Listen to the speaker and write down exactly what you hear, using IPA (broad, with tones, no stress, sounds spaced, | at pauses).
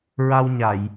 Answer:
ɹ a˧ w ɲ a˨˩˨ j